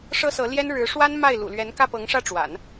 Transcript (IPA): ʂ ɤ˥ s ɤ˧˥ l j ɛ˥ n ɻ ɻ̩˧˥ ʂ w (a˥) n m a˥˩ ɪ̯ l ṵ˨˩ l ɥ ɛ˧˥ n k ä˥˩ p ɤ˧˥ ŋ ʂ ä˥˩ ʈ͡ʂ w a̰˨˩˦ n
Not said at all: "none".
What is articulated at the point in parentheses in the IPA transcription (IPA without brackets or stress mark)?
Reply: a˥